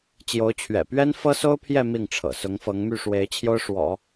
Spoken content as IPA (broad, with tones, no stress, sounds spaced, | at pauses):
t͡ɕ j o˧˥ ʊ̯ t͡ɕʰ ɥ ɛ̰˨˩ p ɥ ɛ˥ n f ɤ˥ s o˥ ʊ̯ pʰ j ɛ˥˧ m i˥˩ ŋ ʈ͡ʂʰ ɤ̰˨˩ s ʊ˧˥ ŋ f ɤ˧˥ ŋ m y˥˩ ʂ w e˧˥ ɪ̯ t͡ɕʰ j o˥ ʊ̯ ʂ w ɔ̰˨˩˦